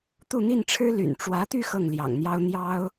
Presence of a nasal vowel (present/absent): absent